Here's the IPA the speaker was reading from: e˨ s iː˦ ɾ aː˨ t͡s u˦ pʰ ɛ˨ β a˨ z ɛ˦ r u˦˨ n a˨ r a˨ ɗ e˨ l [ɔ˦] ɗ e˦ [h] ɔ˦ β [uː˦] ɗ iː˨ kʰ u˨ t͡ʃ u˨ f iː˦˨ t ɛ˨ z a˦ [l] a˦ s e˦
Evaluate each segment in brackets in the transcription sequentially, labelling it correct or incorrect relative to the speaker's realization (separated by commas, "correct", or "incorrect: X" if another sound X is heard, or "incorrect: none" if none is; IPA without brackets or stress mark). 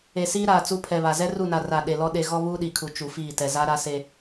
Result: correct, incorrect: ɣ, correct, incorrect: ɾ